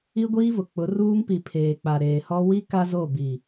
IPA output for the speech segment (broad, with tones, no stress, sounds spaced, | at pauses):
i˦ ɡʷ iː˦ v ʊ˨ k͡p ʊ˨˦ r uː˦ ŋ p i˨ pʰ eː˨ k͡p a˨ ɾ eː˨ h ɔ˦ w i˦ k a˦ z o˦˨ b i˨